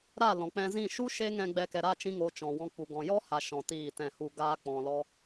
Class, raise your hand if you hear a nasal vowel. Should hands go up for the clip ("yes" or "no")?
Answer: yes